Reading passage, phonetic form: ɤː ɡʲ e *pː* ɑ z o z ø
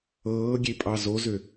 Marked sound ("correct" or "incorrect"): incorrect